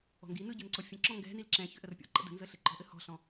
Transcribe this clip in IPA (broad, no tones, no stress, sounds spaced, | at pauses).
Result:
ɔ̤ ŋ ɡ i n ɯ ɟ ɯ n ǀ ɔ fʲ ə̃ ǁ ɔ̃ ŋ ɡ ɛ̤ n i l ǁ ɛ̃ ç ʏ ʔ ə r pʲ ɔ̰ ǃ ə̰ d ə̤ n z ə ɬ ɘ ǃ ɔ̤ ʔ ɘ h ɔ̤ ɬ ɔ̃